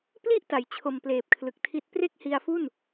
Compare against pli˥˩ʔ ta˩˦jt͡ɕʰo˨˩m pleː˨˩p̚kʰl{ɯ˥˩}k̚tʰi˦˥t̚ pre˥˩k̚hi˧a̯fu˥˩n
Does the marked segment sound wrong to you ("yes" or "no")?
yes